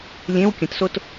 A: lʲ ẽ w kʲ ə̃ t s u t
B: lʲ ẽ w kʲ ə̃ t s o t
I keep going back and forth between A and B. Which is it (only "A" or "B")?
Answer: B